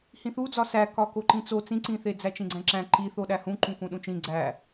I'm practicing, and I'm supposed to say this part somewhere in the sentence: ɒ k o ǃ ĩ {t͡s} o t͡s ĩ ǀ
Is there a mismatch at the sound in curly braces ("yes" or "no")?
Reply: no